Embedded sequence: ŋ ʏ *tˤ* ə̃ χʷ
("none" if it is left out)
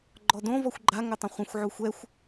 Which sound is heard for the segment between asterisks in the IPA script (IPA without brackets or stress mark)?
tˤ